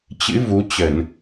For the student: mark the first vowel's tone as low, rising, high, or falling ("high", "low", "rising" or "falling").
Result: rising